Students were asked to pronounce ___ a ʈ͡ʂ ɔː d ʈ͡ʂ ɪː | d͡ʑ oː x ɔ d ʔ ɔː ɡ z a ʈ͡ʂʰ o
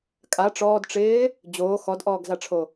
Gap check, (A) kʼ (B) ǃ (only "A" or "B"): A